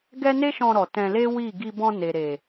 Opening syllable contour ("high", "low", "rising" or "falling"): high